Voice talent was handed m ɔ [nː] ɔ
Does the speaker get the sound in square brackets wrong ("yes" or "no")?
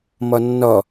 no